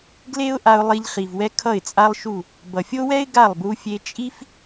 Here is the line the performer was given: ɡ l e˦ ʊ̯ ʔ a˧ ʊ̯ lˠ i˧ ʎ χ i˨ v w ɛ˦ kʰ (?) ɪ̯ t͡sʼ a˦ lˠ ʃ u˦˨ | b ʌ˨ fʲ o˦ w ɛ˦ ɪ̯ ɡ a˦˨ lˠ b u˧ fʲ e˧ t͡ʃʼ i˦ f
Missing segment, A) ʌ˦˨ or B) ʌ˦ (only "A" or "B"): A